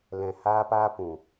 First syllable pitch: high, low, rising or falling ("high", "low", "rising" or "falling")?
low